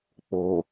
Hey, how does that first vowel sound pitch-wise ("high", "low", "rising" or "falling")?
low